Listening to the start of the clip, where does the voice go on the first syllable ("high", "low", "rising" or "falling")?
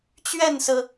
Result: falling